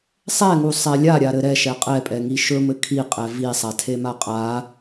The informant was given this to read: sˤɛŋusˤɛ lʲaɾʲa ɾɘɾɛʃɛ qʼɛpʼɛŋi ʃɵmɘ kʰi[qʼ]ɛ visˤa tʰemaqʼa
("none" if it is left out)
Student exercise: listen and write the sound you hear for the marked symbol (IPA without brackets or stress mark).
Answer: qʼ